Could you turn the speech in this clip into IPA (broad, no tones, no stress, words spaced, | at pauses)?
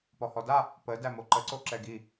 pɔhɔda | pə dæmoǃəǀo ǁɛɡi